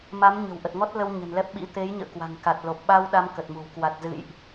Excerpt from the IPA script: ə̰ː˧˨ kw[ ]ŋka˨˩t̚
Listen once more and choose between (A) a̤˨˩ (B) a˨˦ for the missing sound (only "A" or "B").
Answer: A